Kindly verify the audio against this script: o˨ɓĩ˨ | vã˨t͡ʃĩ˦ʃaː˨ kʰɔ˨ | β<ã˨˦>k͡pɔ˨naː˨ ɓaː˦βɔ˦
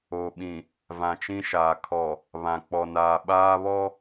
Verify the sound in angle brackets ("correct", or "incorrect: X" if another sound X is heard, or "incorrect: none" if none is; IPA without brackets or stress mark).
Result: incorrect: ã˨